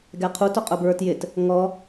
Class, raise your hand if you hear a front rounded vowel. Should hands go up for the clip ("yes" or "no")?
no